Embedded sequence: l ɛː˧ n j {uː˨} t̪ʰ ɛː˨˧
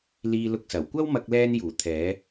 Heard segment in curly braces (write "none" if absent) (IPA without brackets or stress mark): uː˨˩